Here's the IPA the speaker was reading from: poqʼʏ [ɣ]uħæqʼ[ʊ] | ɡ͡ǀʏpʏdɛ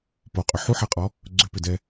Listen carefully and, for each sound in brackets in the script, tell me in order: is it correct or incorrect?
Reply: incorrect, incorrect

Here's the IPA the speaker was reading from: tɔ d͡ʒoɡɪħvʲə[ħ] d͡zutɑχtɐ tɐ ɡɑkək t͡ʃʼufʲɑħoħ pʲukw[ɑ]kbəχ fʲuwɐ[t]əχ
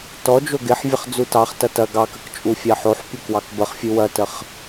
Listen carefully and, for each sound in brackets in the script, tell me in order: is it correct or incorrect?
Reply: incorrect, correct, correct

